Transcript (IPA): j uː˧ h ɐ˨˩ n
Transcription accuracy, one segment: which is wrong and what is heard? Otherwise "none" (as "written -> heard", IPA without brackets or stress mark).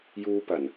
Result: h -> p